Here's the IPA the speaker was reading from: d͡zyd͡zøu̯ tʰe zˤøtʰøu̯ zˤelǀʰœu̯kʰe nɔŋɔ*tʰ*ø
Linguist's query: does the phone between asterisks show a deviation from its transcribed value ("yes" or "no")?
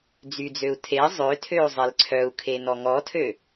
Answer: no